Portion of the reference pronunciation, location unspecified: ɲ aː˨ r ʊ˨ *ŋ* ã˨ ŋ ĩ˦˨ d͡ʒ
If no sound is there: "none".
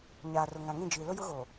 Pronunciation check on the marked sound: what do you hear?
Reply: ŋ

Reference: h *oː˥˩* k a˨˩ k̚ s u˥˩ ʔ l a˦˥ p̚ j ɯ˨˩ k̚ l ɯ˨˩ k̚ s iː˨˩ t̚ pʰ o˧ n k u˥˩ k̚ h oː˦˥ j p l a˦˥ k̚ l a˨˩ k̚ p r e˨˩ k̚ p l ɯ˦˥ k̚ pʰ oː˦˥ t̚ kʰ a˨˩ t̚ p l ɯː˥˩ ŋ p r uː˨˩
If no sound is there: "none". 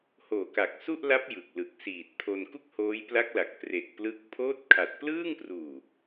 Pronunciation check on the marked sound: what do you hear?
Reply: oː˨˩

